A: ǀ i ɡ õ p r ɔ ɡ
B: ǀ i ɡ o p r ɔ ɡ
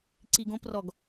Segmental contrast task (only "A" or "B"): A